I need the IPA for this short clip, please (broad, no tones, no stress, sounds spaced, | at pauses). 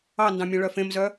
ɑ n d ɑ̃ mʲ œ̃ ɭ œ f ẽ m z œ